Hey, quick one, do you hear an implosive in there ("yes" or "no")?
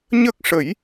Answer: no